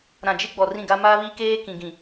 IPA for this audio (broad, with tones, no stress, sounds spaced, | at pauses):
ɾ ã˨ d͡ʒ ɪ˦ ɡ͡b ɔ˨ r ĩ˦˨ ɡ a˦ m a˦ β i˦ k eː˦ k ĩ˨ ɡ ĩ˨